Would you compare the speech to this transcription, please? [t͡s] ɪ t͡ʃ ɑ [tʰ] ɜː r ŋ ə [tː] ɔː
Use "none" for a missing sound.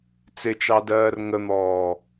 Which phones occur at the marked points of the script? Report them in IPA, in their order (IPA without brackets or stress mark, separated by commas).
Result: t͡s, d, n̪